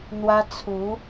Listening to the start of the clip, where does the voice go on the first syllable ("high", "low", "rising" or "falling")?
high